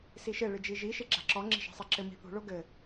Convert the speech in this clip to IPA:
s i ʃ ɘ ɭ ɨ d͡ʒ i ʒ i ʃ e ɡ͡ǁ a̤ ǁ ɔ ŋ͡ǁ i̤ ʃ a̤ sˤ i ǁ ɘ m i̤ θ ṳ ɭ o ɡ ɘ

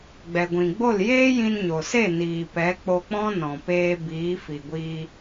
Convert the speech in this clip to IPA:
ɡ͡b ɛ˨ ɡʷ ĩ˨ ɡ͡b o˦˨ l j eː˦ j ĩ˧ n ɲ o˨ s e˦˨ n iː˨ p ɛ˨˦ k͡p o˧ k͡p ɔ̃˦ n ɔ̃˨ p eː˧ b iː˨˦ f i˨ ɡʷ iː˧

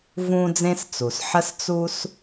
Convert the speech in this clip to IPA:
v ũː˥ d͡z ẽ˥ s t͡s u˩ s ħ ə˥ s t͡s u˥ s

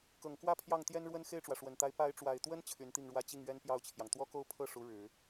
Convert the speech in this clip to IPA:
k ɤ˨˩ ŋ k w ä˥˧ pʰ j ɑ˥˩ ŋ t̪ j ɛ˥ n ɻ w ə˥ n x e˥˩ ɪ̯ ʈ͡ʂ w ä˩ ʂ w ə˨˩ n t̪ a˧˥ ɪ̯ p a˧˥ ɪ̯ ʈ͡ʂ w a˨˩ ɪ̯ t̪ w ə˥ n t͡ɕʰ y˧˥ n t̪ i˥˩ ŋ ɻ w ä˥ t͡ɕ i˥˩ ŋ ɥ ɛ˥ n p j ɑ˥˩ ʊ̯ t͡ɕʰ j ɑ˩ ŋ t̪ w ɔ˥ k o˥˧ ʊ̯ pʰ ɤ˥˩ ʂ u˧˥ ɻ ɻ̩˨˩˦

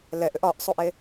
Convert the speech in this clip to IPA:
l ɛ ʔ ʏ ʔ ɒ ʔ sˤ u ʔ e

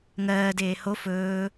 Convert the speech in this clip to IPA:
ŋ ɜː d eː h o f ɵː

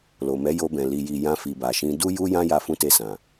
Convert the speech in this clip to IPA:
l o˨ m ɛ˨˦ j o˧ b ɛ̃˨ l i˨ j i˨ j ã˧ f i˨ b a˨ ʃ ĩ˧ d u˦ j u˦ j ã˦ j a˧ f ũ˧ t e˧ s ã˨

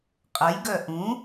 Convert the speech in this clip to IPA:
qʼ ə j ɡ œ ʔ ũ

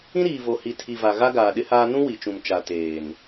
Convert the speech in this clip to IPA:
ĩ˦ ɾ iː˨ v o˨ h i˨ tʰ i˨ v a˨ ɣ a˦ ɡ aː˨ ɗ ɪ˦ h aː˦ n ũ˦ w i˨ t͡ʃ ũ˨ m t͡ʃ a˨ t eː˨ n

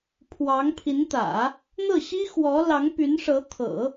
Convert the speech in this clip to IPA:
pʰ w ɑ˧˥ ŋ pʰ i˧˥ n t̪ ä̰˨˩˦ | n̪ ɤ˥˩ ɕ i˥ x w ɔ˧˥ l ɑ˧˥ ŋ p y˧˥ n ʂ ɤ˧˥ t̪ʰ ɤ̰˨˩˦

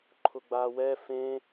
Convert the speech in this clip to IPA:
ǃʰ ʊ ɡ͡b aː w ɛ f ẽ

